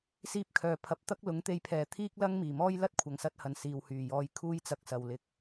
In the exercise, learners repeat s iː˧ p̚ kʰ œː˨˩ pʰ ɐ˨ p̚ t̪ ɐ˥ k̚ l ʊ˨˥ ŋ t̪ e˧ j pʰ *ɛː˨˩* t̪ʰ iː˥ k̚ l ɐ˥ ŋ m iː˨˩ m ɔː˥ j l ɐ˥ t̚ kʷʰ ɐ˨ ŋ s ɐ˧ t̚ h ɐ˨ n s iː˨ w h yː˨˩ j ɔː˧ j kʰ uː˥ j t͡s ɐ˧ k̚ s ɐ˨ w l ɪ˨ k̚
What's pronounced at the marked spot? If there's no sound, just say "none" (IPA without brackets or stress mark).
ɛː˨˩